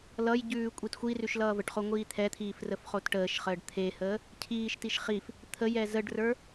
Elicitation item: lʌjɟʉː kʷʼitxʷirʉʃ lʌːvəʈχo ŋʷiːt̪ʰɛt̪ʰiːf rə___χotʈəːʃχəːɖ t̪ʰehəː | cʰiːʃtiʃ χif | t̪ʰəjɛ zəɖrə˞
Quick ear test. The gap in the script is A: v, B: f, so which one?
B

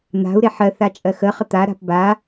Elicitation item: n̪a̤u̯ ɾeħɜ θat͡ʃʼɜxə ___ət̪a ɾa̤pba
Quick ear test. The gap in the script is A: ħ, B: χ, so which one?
B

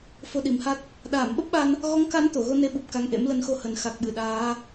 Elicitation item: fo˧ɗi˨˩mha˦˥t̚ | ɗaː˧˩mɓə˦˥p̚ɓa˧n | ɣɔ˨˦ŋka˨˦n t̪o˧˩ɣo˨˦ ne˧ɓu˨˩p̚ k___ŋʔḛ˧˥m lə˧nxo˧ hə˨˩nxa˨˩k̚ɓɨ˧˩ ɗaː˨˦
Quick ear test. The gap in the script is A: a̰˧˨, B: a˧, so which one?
B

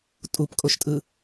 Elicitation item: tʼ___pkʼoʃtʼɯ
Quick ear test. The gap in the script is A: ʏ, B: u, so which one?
B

